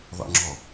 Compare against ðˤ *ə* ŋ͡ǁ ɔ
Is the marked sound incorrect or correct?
incorrect